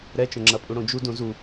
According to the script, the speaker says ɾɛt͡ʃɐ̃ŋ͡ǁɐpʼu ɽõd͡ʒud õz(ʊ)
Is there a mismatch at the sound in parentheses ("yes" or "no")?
yes